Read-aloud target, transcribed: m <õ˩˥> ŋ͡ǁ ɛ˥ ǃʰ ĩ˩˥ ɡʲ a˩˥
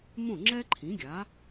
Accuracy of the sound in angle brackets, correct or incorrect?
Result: incorrect